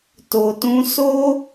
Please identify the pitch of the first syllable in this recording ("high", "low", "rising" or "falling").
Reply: low